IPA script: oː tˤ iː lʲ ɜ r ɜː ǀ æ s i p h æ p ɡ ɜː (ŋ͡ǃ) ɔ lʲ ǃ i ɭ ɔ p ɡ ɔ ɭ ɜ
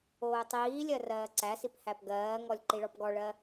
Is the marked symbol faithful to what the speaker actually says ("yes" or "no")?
no